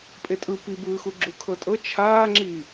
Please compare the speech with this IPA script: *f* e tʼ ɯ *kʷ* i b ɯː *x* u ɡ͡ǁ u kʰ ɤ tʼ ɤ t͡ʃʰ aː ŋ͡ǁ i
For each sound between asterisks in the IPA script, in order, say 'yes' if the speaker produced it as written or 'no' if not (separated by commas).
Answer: no, no, yes